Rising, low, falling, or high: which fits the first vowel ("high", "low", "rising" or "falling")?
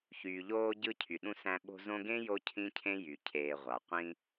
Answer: low